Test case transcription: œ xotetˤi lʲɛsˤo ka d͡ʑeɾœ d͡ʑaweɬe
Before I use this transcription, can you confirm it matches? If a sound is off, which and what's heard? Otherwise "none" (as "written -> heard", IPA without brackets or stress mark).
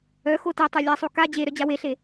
i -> e